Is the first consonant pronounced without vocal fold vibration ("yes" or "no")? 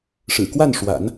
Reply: yes